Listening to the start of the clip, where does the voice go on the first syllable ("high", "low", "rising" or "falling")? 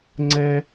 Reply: high